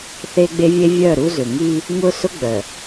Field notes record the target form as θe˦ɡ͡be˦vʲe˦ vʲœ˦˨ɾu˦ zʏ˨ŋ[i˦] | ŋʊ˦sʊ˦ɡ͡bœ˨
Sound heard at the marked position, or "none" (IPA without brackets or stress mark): i˦